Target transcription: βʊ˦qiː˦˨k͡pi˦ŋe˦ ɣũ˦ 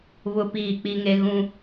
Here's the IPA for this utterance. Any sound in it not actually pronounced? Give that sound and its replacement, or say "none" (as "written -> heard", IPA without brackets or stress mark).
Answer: q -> p